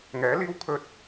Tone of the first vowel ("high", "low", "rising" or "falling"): rising